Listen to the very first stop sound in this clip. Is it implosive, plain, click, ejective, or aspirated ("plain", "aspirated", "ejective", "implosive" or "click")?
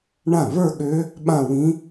implosive